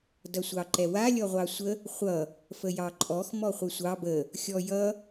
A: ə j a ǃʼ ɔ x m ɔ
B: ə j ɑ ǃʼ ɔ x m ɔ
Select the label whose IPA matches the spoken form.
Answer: B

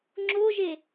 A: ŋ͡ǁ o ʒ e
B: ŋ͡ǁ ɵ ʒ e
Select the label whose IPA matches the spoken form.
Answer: A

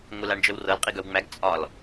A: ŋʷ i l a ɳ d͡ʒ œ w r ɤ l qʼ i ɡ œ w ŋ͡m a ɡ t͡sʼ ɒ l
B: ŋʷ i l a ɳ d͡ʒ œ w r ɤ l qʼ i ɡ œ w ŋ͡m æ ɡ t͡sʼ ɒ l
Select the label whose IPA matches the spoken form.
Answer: B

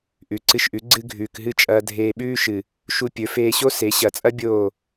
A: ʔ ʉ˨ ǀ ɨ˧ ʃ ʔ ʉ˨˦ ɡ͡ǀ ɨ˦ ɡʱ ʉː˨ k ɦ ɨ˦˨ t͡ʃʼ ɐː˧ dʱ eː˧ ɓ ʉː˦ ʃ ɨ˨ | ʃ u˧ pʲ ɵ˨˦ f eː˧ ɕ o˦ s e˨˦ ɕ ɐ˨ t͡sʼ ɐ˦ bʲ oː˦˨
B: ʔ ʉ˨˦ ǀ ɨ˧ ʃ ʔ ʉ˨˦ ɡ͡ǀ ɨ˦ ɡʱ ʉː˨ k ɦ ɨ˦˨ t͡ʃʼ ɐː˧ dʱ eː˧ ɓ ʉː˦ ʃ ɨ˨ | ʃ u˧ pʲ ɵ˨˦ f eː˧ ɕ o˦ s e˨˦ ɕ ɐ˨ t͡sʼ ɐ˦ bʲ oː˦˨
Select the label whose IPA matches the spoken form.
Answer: A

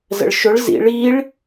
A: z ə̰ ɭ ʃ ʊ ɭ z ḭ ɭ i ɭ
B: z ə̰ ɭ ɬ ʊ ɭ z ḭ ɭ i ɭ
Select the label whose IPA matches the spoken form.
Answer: A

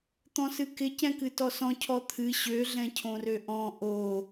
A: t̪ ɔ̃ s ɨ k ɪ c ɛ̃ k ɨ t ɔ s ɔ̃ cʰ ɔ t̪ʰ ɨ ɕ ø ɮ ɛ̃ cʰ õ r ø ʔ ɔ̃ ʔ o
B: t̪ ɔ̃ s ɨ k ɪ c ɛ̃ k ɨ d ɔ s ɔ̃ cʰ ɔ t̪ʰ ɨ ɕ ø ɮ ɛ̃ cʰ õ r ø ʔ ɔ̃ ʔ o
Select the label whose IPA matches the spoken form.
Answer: A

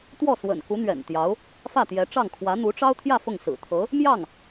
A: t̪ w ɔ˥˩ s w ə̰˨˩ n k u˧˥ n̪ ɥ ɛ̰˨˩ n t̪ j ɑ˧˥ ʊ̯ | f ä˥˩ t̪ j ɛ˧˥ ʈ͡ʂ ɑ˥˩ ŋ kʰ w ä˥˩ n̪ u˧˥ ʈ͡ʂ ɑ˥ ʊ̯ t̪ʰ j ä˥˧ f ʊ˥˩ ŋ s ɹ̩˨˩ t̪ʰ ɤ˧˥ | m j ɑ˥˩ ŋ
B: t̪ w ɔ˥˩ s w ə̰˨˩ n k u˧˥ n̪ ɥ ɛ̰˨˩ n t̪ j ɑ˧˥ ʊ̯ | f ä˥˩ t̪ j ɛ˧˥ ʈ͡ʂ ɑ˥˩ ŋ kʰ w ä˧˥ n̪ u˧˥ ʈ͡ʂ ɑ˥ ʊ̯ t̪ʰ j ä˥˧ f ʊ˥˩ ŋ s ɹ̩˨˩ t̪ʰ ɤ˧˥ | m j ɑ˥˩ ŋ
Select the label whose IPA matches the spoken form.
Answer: B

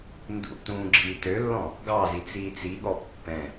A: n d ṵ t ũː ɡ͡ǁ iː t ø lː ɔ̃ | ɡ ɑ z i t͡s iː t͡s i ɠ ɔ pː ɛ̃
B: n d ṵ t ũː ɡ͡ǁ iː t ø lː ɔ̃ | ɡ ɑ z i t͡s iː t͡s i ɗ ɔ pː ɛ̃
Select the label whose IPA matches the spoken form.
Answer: A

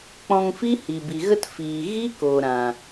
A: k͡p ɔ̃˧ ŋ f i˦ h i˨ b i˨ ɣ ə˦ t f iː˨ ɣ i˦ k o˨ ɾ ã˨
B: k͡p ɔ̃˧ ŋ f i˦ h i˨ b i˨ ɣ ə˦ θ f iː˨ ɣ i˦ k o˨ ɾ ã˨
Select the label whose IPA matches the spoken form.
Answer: A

